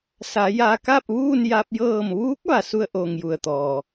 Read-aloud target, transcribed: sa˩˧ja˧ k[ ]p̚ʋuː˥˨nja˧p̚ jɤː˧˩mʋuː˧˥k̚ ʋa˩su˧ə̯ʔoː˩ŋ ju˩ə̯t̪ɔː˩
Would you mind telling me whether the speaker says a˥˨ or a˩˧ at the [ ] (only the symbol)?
a˥˨